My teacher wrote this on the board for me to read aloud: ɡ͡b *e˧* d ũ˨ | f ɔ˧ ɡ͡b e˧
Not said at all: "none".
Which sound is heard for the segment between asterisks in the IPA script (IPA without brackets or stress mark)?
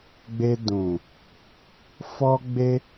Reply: e˧